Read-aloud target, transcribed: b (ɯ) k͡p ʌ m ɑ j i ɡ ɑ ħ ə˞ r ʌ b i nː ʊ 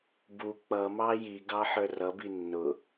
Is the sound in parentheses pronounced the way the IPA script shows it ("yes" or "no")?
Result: no